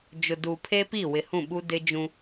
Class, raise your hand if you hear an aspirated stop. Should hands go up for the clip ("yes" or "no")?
yes